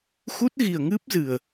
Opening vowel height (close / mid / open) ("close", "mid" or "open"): close